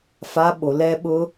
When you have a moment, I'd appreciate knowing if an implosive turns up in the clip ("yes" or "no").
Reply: yes